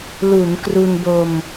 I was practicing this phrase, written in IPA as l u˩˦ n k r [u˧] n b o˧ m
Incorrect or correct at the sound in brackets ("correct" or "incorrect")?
correct